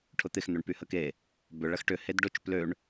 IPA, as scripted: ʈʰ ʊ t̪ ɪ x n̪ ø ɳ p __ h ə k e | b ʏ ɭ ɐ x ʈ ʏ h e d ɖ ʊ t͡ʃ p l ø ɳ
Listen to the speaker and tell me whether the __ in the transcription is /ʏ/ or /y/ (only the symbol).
y